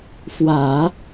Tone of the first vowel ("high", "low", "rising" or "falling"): low